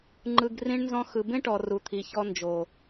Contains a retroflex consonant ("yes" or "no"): yes